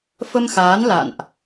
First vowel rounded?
no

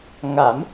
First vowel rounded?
no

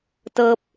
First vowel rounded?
no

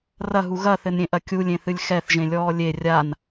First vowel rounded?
no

